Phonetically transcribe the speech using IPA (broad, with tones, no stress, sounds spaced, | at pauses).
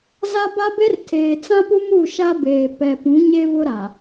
z a˦ b a˦ b e˦ r tʰ eː˨ t͡s ã˦ p u˦ m u˦˨ ʃ a˦ b eː˨ p ɛ˨ p ũ˨˦ ɲ e˦ v ʊ˦ ɾ a˨